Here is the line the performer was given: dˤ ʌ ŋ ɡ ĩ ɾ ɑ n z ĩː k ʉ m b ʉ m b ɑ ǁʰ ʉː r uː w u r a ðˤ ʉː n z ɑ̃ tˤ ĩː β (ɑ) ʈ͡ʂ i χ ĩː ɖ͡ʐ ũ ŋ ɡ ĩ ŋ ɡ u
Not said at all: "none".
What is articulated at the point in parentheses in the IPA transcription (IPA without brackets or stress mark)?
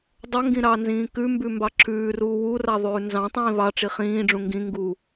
ɑ